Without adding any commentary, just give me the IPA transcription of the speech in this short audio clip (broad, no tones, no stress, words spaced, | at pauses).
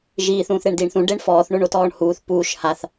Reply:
ʒiːθ ũːθɾeɳdiːɳθũ ɖeɳfɔːθ ɳoɳotɔːɳhuːθ puːʃ haθ